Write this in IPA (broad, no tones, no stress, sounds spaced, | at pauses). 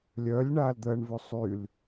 lʲ œ lʲ ɳ aː l d̪ əː ɳ v ʉ sˤ y l